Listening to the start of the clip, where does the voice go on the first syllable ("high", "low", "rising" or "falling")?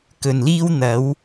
low